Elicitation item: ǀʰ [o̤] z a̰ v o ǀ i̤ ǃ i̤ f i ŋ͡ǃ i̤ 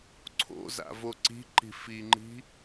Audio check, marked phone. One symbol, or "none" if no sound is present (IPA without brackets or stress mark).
o̰